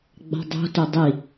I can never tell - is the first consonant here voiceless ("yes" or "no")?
no